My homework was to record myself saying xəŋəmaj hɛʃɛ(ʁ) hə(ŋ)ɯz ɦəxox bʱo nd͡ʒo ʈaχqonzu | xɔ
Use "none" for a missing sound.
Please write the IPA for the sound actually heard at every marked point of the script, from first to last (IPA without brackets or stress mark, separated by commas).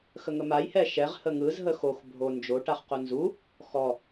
ʁ, ŋ